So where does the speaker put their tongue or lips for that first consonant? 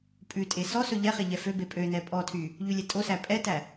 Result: lips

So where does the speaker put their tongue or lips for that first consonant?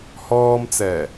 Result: throat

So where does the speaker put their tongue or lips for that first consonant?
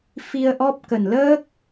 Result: lips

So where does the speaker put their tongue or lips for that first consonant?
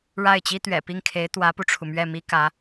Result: retroflex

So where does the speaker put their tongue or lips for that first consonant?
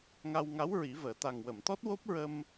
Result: velum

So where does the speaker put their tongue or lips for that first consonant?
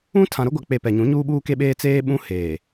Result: tongue tip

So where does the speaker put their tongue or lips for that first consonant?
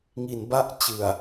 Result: velum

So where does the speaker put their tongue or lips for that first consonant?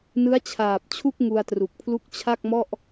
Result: tongue tip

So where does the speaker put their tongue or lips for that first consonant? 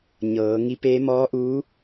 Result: palate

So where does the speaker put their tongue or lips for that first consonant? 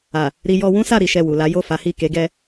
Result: tongue tip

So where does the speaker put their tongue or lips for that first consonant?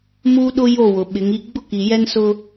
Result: lips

